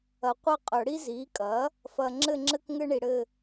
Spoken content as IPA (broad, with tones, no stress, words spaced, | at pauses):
ɐ˨qʷɐ˥˨qʼœ˨˩˦ɽi˥ zi˩˥kʼɐ˩˥ | fɐ˨ ŋ͡ǁɘ˥˨ŋ͡ǁɘ˥k ŋɘ˥ɳi˨ɽɘ˥˨